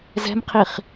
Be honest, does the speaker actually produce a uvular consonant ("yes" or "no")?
yes